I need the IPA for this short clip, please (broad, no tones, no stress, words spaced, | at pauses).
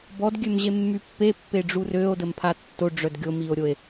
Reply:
bɔdɡʲømʑemːy pːepːeɖ͡ʐur øo̯dəmpʰa tːoɖ͡ʐœd ɡʲomio̯ɾʲoe̯